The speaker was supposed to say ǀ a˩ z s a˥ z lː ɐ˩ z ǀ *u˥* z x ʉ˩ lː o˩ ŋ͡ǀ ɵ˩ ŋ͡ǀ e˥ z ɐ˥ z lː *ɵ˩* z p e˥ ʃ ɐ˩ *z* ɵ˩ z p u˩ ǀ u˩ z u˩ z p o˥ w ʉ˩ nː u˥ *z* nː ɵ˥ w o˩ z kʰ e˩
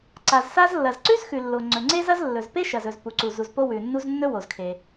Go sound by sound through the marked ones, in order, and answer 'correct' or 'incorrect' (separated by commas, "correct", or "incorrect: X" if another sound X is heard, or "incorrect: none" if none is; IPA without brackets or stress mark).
incorrect: ʉ˥, correct, correct, correct